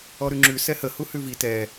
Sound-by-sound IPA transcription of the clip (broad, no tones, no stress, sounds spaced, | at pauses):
ɔ ɾ ʉ ŋ͡ǁ ʉ s ɛ h ə h u h ʉ v i t ɛ